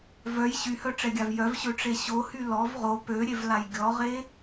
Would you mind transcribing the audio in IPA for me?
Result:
v œ j ɕ y h œ ʈ͡ʂ ɛ ɡʲ a v j œ v ɕ ø ʈ͡ʂ e ɕ o h y l ɔ v ʁ o p ø ɾʲ e v l a j ɡʲ ɔ ʁ e

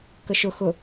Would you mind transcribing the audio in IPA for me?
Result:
k ə ʃ ʊ x ʊ

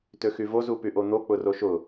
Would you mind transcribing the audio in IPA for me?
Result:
t ø x y v o z u p y ʔ o n̪ o k͡p ʊ r o ʃ ʊ

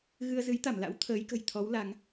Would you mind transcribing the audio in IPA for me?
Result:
ɣ ɨ˧ ə̯ z ɨ˨˦ j t̪ a˧˩ m l a̰˧˥ w t̪ʰ əː˨˦ j k ə̤˨˩ j t̪ʰ ɔ˨˦ w l a˨˦ ŋ

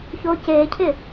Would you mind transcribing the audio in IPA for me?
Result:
ç o c e cʰ ɪ

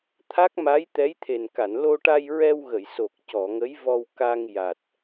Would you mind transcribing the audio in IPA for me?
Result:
t̪ʰ a˦˥ k̚ m a˧˥ j t̪ ɛ˧˥ j t̪ʰ e˨˩ n k a˨˩˨ n l o˧ ʈ a˧ j ɹ ɛ˧ w ɣ ə˨˩˨ j s o˨˩ k̚ c ɔ˨˩˨ ŋ ə˧˥ j v ɔ˧ w k a˧ ŋ j a˨˩ t̚

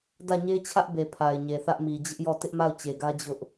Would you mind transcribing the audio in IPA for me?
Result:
d ä˦˨ ɲ e˦ t͡ɕʰ ä˦ ʔ b e˨ pʰ a˨ ɪ̯ ɲ e˨ θ ä˦ ʔ m i˨ d͡ʑ ɪ˦ ʔ j ɔ˦˨ t ɪ˦ ʔ m a˦˨ ʊ̯ t͡ɕ e˨ ɡ ä˦ d͡ʑ ʊ˦ ʔ

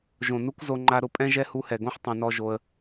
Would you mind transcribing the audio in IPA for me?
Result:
ʒ õ˨ n u˦ k z o˧ ŋ͡ǃ a˧ ɾ ʊ˧ pʼ ɛ̃˦ ʒ ɛ˦ h u˧ h ɛ˨ ɡ õ˦ ħ tˤ ɛ̃˧ n ɔ˦ ʒ o˧ ə̯

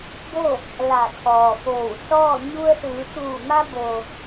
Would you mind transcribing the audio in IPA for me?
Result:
b o˥˨ | l a˧˩ kʰ ɔː˩ f oː˧˩ w s ɔː˥˨ ɲ u˧ ə̯ s ɯː˩˧ t̪ uː˧˩ m a˧ b oː˩

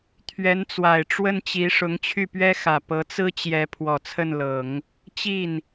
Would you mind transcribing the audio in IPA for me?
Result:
t̪ʰ ɥ ɛ˧˥ n t͡s w a˨˩ ɪ̯ ʈ͡ʂ w ə˥˩ n t͡ɕ i˧˥ ʂ ʊ˧˥ ŋ t͡ɕʰ y˥˩ p ɥ ɛ˥ x ä˨˩ p ɤ˧˥ t͡s ɹ̩˥ t͡ɕ j ɛ˧˥ pʰ w ɔ˨˩ t͡sʰ ə˥˩ n l ɤ˨˩˦ ŋ | t͡ɕ i˥˩ n

